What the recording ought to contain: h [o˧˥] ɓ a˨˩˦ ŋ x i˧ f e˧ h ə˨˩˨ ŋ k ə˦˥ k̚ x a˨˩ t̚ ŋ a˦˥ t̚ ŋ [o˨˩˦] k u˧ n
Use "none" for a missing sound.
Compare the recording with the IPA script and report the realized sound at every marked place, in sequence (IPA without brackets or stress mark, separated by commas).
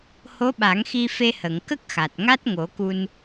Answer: o˧˥, o˨˩˦